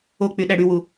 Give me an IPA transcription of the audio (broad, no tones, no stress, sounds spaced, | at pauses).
o k͡p y ɗ æ ɽ y w u